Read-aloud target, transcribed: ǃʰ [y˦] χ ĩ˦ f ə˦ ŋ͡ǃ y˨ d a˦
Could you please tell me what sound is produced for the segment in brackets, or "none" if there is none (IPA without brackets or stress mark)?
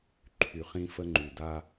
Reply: y˨